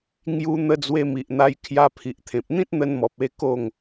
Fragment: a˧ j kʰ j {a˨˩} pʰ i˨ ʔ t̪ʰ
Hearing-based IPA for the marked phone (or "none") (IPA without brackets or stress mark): a˧